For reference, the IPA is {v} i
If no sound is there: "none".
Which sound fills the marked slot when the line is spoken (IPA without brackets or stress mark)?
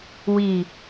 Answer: w